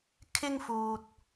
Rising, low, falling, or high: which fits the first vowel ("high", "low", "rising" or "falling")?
high